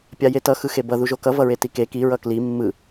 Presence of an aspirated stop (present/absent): absent